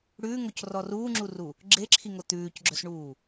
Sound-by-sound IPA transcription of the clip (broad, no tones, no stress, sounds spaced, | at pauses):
ɽ ʉː ŋ o c r ɔ r uː ŋ͡ǁ u r u | ɡ͡ǁ e ǁʰ i ŋ o t̪ ʉː c ɡ͡ǁ œ s ɳ uː